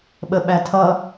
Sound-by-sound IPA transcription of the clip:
ɓ ə ɓ æ tʰ ʌ

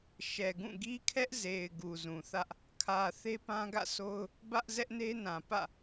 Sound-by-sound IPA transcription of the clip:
ʃ ɛ˨ ɡ ũ˦˨ ɡ i˦ kʰ ɛ˦ ʔ z e˨ ɪ̯ ɡ u˨ z ũ˨ θ ä˦ ʔ | kʰ ä˨ θ e˦ p ã˦ ɡ ä̰˦˨ sʰ o˦ ʊ̯ | b ä˦ ʔ z ɛ˦ ʔ n e˦ n ã˨ p ä̰˦˨

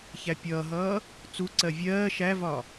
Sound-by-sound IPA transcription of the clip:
ç æ pʲ ʌː ɦ ʌː | t͡s u ǀ ɜ vʲ ɜː ʃ æ v ɒ

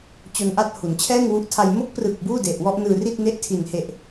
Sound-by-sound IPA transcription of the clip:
t͡ɕ o˧ n ʔ a˥˩ t̚ h u˩˦ n t͡ɕʰ ɛː˥˩ ŋ w u˦˥ ʔ tʰ a˧ j m o˦˥ k̚ p r ɯ˨˩ k̚ b uː˥˩ d e˨˩ ʔ w ɔ˥˩ ʔ n ɯː˧ r i˥˩ t̚ n e˦˥ ʔ tʰ i˨˩ n h e˨˩ ʔ

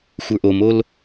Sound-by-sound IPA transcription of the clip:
xʷ ə˞ ʔ o m o l

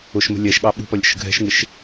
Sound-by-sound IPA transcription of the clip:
ʊ ʃ m ə̤ lʲ ɛ ʃ ɠ ɑ ɓ ṳ p ʌ lʲ ə̰ ʃ ə̤ ɡʱ ɛ̤ ʃ ŋ ɪ ʃ

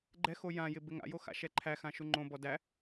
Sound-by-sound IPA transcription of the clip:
ɡ͡ǃ ɛ x o j ã j ɪ b ɪ ŋ a̰ j o x a̰ ʃ ɛ ǃʰ æ x ã ʃ u ŋ͡ǃ õ b ɔ d æ

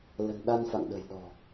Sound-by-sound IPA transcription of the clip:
l ə̤˨˩ n ɗ a˧ n f a̰˧˨ ŋ ɗ ə̤˨˩ j ɗ ɔ̤˨˩

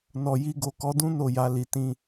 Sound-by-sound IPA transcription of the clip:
n ɔ˨ j i˧ ɡ o˨ k ɔ˨˦ d ũ˦ n o˦˨ j a˨˦ l i˧ t ĩ˦

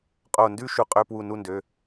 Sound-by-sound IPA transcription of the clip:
qʼ o˧˩ n d ʉ˥ ʃ u˧˩ qʼ ø˧˥˧ p w u˧˩ n u˥˧ n d ø˩˧˩

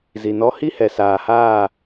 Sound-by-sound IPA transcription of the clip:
z i˨ n ɔ˦ h i˦ h ɛ˨ s aː˨ h aː˦˨

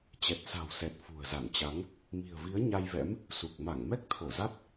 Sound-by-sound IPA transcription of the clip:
t͡ɕ ɛ˨˩ t̚ s a̤˨˩ w s ɛ˨˩ t̚ f ṳ˨˩ ə̯ z a˧˩ n t͡ɕ a˨˦ ŋ | m i̤˨˩ ə̯ v i˨˦ ə̯ ɲ a˧ j v ɛ̰˧˥ m | s u˨˩ k̚ m a˧˩ ŋ m ɛ˦˥ k̚ t̪ʰ o˧˩ z a˦˥ t̚

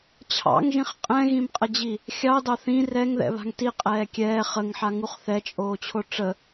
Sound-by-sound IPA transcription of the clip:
t͡ɕʰ ɑ̰ ŋ ʒ ĩ χ qʼ ɛ̃ ɣ ĩ m qʼ ə d͡ʑ i | xʲ ɑ d ɑ θ ĩ r ɛ ŋ ð ɛ̰ β a̤ ŋ t i qʼ ɛː kʲ ɛː χ ə ŋ ħ a ŋ u χ θ ɛ t͡ʃʼ oː t͡ɕʰ o ʈ͡ʂ ə

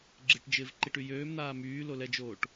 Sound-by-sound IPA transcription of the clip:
ɡ͡ǁ ɪ ʈ d͡ʒ ɪː v ǃ i ʈ y j øː m n̪ aː m yː l o l ɛ d͡ʒ oː ʈ

